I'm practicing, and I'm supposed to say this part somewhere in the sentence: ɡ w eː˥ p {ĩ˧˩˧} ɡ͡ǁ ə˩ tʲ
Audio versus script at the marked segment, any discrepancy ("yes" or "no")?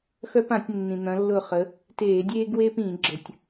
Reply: no